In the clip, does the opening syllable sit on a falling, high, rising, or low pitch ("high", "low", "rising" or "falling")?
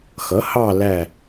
rising